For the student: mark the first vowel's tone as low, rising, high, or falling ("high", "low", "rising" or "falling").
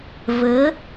rising